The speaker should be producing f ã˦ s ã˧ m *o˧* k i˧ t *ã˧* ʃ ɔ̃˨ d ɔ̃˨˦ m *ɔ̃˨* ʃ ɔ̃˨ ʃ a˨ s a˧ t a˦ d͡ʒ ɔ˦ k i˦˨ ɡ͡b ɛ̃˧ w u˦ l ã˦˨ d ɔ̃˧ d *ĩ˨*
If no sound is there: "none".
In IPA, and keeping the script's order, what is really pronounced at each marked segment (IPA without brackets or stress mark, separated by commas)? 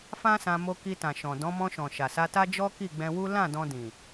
o˧, ã˨, ɔ̃˧, ĩ˨